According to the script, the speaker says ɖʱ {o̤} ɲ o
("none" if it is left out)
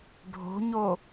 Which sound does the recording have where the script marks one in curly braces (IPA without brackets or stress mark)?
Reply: o̤